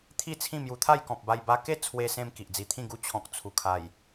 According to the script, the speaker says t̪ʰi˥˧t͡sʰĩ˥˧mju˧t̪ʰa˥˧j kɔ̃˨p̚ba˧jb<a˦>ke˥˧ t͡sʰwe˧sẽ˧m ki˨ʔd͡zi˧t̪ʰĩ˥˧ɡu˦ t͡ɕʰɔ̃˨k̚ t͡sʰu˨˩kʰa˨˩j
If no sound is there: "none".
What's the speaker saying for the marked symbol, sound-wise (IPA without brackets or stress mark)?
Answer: a˧